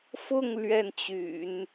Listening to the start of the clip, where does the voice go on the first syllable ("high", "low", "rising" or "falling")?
falling